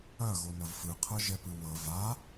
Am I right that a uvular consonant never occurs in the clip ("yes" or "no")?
no